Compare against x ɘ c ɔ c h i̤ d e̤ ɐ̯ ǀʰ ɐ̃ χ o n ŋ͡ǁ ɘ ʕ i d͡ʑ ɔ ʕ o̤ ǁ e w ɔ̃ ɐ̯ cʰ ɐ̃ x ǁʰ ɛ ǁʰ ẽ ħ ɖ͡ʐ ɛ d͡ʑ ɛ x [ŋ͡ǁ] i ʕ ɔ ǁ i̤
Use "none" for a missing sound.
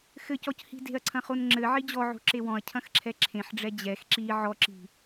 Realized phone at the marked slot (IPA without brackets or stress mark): ǁ